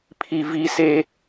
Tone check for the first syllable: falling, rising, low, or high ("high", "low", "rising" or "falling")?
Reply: low